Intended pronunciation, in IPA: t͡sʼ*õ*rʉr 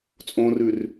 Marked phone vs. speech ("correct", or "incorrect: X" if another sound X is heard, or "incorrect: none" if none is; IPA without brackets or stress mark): correct